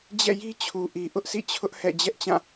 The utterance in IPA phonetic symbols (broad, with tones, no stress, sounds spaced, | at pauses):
d͡ʑ ɛ̰˦˨ j i˦ t͡ɕʰ u˨ ʔ i˨ ʔ ʊ˦ ʔ sʰ ḭ˦˨ t͡ɕʰ ʊ˦ ʔ h ɛ̰˦˨ d͡ʑ ɛ˦ ʔ t͡ɕ ã˦˨